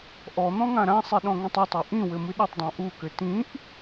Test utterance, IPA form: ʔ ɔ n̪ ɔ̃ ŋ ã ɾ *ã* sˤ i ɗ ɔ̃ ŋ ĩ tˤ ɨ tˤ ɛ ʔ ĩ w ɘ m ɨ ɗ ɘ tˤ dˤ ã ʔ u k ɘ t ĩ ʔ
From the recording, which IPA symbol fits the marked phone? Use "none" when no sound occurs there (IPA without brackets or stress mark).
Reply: ã